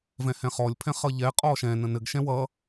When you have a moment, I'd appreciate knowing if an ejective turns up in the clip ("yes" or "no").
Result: yes